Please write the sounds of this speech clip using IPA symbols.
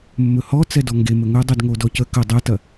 mːɵhɔ t͡sɛdɔŋɡemɵ ŋɵdˤyd ŋodɔcə kə dˤɛtɐ

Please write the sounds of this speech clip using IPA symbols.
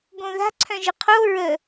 ɡõða̤ ǀʰœ̃ʒɘqʰo ɹə

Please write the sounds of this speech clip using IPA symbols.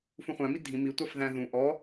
fũχʷæ̃mi dʱĩ mi tʷɑfðæ̃ðũ ʔɔ

